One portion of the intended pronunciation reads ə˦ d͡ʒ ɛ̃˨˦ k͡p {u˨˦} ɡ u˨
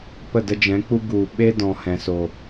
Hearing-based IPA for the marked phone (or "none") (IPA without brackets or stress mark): u˦